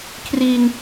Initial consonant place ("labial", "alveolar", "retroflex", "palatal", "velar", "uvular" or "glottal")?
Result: velar